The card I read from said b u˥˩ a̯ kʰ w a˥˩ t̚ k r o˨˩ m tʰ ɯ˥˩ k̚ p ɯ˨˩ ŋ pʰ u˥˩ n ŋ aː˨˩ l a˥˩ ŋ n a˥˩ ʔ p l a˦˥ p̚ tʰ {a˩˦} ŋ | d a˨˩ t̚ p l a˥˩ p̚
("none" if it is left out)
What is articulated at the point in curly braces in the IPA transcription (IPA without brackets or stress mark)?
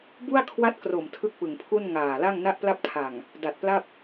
a˨˩